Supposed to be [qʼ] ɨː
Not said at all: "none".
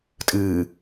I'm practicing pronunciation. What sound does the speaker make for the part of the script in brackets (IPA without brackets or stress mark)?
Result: tʼ